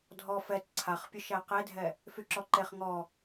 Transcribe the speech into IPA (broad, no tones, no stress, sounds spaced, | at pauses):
dʱ ɔ f ɛ t ǀʰ a χ pʲ ʊ ʃ æ q e dʱ ɛ | f y ǁ ɔ ǃ e χ ŋ ɔ